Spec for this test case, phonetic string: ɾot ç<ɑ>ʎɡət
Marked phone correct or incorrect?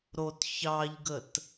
correct